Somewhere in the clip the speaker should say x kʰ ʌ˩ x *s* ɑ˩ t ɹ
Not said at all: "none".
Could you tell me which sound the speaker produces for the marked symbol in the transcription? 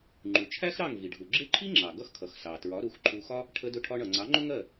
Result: s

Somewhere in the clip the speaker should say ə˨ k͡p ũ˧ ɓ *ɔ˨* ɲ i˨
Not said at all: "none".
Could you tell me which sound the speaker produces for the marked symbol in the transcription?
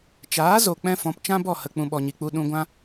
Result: ɔ˨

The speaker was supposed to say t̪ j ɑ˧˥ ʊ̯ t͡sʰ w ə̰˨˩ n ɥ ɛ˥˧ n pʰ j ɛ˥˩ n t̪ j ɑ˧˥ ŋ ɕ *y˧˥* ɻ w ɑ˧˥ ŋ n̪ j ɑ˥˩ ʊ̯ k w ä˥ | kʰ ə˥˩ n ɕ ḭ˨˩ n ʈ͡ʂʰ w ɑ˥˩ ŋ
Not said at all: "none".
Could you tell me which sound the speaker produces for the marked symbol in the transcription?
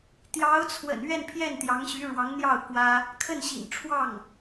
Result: y˧˥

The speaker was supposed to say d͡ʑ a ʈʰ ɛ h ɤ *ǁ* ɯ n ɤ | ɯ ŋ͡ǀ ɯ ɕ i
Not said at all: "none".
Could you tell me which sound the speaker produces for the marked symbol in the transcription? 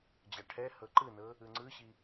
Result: ǃ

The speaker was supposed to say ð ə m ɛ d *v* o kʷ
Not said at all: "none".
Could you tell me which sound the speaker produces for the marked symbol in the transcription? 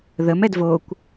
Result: v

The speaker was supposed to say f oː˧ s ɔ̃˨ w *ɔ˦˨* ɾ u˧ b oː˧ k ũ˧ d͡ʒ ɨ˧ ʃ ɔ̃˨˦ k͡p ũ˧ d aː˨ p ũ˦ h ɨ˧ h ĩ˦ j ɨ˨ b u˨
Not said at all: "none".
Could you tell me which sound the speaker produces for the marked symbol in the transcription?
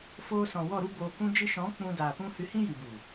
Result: ɔ˦˨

